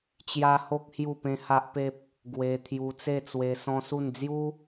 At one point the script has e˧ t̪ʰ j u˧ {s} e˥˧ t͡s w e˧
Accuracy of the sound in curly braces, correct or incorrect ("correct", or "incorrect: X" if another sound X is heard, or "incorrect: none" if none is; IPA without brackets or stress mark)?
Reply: incorrect: t͡s